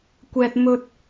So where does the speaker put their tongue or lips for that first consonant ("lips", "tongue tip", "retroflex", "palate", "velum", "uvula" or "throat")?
velum